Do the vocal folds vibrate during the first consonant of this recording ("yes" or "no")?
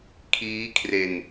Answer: no